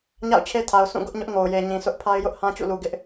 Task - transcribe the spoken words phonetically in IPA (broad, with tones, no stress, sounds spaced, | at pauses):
ɲ a̰˦˨ ʊ̯ t͡ɕʰ e˦ tʰ a˨ ʊ̯ s ũ˦˨ ɡ ʊ˦ ʔ ɲ ʊ˦ ʔ ŋ o˨ ʊ̯ j e˨ ɲ ĩ˨ s ʊ˦ ʔ pʰ a˦ ɪ̯ j ʊ˦ ʔ h ã˦ t͡ɕ ṵ˦˨ l u˨ ɡ ɪ˦ ʔ